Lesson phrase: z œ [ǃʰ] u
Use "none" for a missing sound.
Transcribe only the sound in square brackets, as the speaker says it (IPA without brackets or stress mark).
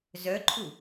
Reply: ǃʰ